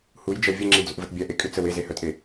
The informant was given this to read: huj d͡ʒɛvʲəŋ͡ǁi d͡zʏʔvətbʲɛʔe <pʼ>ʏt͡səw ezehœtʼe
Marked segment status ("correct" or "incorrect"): incorrect